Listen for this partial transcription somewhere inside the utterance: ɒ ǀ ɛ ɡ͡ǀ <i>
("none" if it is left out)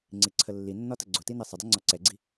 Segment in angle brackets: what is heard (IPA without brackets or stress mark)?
i